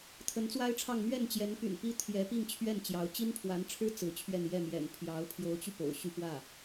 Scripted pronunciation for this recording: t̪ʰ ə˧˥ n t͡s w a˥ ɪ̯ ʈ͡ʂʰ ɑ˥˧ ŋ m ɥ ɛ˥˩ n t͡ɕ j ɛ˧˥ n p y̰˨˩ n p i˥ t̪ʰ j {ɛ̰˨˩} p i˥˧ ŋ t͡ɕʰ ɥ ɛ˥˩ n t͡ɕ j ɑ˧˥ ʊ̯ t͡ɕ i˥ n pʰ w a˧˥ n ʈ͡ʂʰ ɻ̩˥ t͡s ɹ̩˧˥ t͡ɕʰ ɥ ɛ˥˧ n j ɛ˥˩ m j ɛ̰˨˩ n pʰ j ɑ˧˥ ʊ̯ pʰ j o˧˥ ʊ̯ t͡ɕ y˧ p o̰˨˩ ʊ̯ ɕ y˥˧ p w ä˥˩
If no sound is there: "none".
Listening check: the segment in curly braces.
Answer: ɛ˧˥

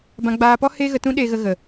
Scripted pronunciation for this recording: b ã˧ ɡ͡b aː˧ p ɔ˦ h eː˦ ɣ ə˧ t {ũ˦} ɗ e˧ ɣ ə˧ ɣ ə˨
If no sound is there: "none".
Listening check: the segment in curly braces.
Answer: ũ˦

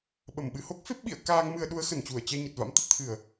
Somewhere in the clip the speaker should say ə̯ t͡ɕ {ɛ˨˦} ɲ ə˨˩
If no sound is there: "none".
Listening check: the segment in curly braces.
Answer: ɛ˧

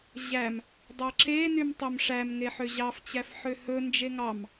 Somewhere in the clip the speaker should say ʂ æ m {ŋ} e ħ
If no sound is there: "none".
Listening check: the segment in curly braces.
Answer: ŋ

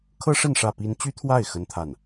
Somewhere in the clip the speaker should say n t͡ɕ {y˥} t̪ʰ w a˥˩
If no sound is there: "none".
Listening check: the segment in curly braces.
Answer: y˥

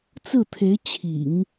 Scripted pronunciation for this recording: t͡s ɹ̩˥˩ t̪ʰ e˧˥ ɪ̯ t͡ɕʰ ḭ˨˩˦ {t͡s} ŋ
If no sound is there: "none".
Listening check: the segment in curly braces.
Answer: none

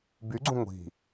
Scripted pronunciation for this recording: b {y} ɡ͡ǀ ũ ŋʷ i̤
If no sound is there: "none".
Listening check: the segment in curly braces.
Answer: y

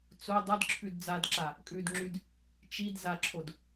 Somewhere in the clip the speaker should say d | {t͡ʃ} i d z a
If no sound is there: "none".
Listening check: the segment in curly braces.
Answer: t͡ʃ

